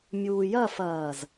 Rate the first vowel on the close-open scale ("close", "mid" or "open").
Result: close